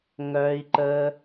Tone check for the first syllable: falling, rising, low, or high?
low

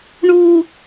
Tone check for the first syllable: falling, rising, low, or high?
high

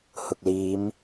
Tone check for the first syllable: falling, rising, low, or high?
low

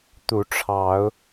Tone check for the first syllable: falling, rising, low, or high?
rising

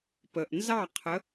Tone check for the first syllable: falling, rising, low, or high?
low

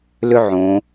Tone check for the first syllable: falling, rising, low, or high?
high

